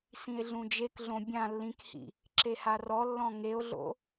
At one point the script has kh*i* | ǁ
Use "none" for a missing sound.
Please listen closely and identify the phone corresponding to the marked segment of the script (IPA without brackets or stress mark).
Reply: ḭ